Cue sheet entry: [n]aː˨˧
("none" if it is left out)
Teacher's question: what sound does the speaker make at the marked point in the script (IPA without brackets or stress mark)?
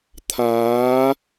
t̪ʰ